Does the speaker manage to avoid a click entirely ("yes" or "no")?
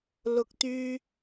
yes